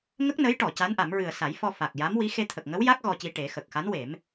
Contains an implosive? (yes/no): no